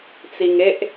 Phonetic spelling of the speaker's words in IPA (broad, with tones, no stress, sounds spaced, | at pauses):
t͡s i˧ ŋ e˦ ʔ